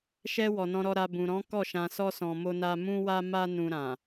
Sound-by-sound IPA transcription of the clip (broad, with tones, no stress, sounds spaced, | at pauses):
ʃ ɛ˧ w ɔ˨ n ɔ̃˧ ɾ ɔ˧ ɾ a˨ b ũ˨ ɾ ɔ̃˨˦ k ɔ˦˨ ʃ ã˧ s ɔ˦ s ɔ̃˧ m o˦ n a˦ m ũ˦ w a˦ m a˦ n ũ˧ ɾ ã˨